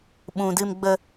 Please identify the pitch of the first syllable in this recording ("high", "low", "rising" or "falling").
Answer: low